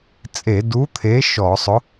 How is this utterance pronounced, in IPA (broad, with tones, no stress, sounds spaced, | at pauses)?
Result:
t͡sʼ e˧˩˧ d u˨˥ t̪ʰ e˨˥ ʃ ɔ˧˩˧ sˤ ʊ˨˥